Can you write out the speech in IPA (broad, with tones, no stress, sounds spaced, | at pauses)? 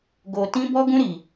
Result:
ɡ o˧ t ĩ˦ b ɔ˦ ɡ ũ˦ ɾ i˧